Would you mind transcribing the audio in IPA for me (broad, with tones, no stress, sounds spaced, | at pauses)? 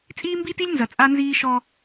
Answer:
t͡sʼ iː˦ m b iː˦ t i˦ lʲ n z ɐ˨ t͡sʼ a˦ n z iː˦ ʃ ɔ˦